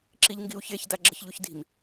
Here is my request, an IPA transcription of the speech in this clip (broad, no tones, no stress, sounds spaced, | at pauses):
ǁ i ʎ ŋ ɡ i u̯ ç e ç d a ɡ͡ǁ ə ç ʎ u ç d i̤ m